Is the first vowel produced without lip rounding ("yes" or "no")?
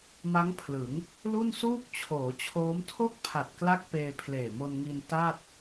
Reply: yes